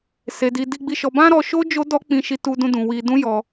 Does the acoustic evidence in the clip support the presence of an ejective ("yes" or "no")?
no